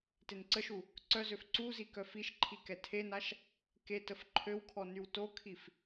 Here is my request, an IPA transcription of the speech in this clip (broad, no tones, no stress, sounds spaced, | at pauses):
t e n ǀ ə ʃ u | ǀ œ z ø f ǀ u z i k œ f i ʃ ǃʰ i k ɛ tʰ e n a ʃ | k e t ə f ǃʰ ø w kʰ ɔ n y w t o kʰ i f